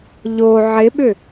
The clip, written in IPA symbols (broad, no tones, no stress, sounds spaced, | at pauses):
ʎ o ʕ ɪ ɓ ʏ